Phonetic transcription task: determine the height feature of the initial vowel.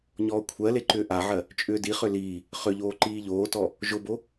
mid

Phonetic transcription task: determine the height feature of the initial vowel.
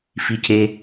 high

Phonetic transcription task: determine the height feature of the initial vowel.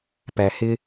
low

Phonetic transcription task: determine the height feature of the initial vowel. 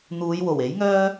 high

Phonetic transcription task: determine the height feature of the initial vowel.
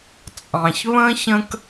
low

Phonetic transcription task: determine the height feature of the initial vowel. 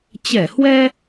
mid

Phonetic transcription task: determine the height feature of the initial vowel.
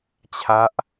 low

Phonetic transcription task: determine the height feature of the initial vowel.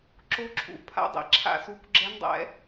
mid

